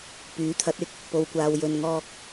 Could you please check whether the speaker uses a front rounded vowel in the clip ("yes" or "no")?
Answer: yes